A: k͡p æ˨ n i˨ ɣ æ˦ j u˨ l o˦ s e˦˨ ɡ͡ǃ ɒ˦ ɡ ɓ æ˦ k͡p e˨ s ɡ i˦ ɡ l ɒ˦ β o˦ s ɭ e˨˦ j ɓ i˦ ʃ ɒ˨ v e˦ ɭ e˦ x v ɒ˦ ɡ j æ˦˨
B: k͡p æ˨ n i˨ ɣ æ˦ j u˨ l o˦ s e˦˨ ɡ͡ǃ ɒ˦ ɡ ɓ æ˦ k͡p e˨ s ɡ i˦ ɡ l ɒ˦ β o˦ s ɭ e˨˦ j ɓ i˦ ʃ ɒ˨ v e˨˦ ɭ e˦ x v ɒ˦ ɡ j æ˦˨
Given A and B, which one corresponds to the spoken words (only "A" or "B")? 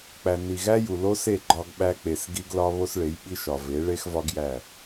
B